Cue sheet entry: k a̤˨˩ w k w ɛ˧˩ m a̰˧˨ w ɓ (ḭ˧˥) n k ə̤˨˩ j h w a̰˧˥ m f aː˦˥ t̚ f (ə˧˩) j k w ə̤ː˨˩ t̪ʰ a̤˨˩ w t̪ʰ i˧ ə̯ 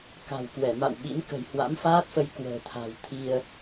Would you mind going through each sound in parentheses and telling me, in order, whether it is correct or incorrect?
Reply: correct, incorrect: ə˧

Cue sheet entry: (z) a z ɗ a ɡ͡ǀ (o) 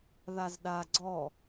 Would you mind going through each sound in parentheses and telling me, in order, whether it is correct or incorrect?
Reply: incorrect: ð, incorrect: ɔ

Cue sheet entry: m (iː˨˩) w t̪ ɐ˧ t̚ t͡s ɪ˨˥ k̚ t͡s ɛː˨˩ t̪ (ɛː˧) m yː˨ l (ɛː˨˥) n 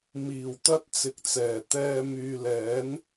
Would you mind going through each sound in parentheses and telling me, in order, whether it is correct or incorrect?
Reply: correct, correct, correct

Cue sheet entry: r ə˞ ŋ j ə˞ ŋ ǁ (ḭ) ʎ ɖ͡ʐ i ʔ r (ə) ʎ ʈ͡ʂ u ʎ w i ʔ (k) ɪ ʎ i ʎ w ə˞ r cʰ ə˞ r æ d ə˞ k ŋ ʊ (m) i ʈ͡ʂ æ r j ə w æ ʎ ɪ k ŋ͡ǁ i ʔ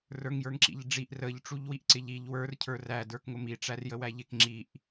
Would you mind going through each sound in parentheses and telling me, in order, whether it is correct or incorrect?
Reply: correct, correct, incorrect: ǀ, correct

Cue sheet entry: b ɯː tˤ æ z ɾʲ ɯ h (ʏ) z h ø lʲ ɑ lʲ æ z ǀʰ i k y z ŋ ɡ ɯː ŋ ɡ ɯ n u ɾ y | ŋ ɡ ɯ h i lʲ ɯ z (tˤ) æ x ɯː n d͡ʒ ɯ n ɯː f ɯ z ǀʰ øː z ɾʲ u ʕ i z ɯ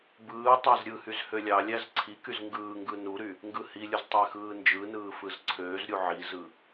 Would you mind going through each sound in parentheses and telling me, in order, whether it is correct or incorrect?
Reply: incorrect: y, correct

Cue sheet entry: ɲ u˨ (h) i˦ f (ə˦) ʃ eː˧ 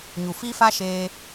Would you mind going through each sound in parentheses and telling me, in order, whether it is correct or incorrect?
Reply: incorrect: f, incorrect: a˦

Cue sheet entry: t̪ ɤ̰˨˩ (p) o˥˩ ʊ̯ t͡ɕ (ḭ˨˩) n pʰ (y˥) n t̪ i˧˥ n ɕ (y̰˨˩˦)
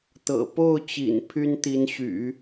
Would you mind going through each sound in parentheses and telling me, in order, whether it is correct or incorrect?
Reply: correct, correct, correct, correct

